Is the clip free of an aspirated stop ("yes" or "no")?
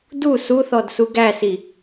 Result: yes